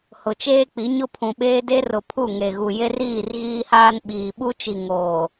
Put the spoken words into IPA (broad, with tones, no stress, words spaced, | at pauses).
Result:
hʊ˨t͡ʃeː˦k͡pi˨˦ɲʊ˦ pʰũ˨ɓeː˦de˦ rʊ˨pʰu˦˨ ŋe˨ɣu˨ je˦riː˦˨r ɣiː˦haː˦n ɓiː˨ɓu˦t͡ʃi˨ ŋoː˨